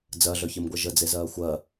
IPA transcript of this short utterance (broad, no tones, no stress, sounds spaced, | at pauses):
d͡z ɜ ɮ œ ç e m ɡʷ ɜ ʒ ə d͡z e z ɜː xʷ ɜ